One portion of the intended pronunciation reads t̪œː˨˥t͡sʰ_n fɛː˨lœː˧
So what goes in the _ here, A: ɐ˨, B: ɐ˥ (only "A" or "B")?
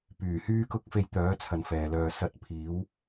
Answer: A